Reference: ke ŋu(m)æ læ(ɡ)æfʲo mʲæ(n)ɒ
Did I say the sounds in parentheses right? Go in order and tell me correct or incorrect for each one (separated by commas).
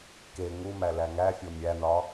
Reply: correct, incorrect, correct